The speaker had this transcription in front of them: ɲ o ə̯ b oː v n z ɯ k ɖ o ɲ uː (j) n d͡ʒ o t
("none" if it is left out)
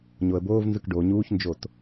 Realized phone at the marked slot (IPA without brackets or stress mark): ç